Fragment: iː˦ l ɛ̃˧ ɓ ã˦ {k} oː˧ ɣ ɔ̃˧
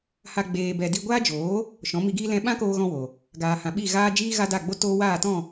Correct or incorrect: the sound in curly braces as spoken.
correct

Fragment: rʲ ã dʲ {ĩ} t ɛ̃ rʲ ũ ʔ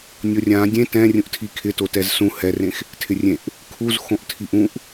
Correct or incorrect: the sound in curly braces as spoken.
incorrect: ẽ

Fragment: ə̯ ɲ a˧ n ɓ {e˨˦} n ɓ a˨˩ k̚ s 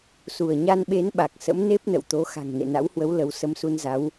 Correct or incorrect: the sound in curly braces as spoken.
correct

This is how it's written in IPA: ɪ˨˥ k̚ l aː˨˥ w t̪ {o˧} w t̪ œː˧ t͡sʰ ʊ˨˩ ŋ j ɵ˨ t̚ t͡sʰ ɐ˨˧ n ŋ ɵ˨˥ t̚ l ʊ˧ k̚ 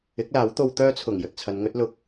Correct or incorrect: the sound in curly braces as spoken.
correct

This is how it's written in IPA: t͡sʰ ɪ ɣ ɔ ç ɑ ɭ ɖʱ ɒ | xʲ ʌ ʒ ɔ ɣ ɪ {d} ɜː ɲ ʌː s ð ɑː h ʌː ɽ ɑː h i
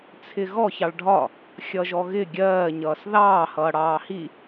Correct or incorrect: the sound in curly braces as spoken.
incorrect: ɡʲ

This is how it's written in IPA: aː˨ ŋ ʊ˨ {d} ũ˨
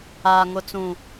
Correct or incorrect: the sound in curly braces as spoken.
incorrect: t͡s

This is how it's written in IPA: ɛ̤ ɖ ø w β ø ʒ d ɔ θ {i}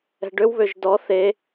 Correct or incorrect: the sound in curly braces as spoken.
incorrect: e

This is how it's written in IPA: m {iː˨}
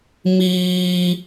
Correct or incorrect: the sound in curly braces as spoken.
incorrect: iː˦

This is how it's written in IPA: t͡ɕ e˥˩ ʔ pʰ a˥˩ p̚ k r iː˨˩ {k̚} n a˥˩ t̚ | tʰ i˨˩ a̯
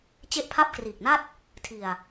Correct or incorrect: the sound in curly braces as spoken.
correct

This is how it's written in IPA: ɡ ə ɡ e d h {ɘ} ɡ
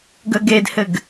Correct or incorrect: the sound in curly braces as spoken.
correct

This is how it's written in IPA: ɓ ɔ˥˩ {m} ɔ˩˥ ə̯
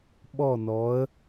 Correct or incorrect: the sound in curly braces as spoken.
incorrect: n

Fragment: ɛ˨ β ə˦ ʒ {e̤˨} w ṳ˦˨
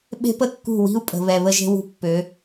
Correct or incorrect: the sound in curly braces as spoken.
incorrect: e̤˦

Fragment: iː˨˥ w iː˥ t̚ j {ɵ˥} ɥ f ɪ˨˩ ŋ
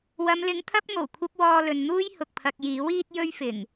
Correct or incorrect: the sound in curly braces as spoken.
correct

